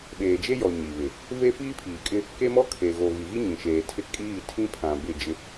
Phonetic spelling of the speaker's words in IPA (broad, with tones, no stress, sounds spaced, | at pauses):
ɓ eː˨ d͡ʒ e˦ j ɔ˨ ɲ i˨ β ɪ˨ | v e˦ f iː˦ pʰ iː˨ kʼ ɪ˦ | k e˦ m ɔ˦ kʰ e˨ ɣ o˨ ɣ i˨ ɣ i˦ ɲ ĩ˨ ʃ eː˨ tʰ ɪ˦ kʼ iː˦˨ tʰ ĩ˦ pʰ ã˨ b ɪ˦˨ d͡ʒ ɪ˦